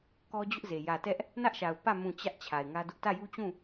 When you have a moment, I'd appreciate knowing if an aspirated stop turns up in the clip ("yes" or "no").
yes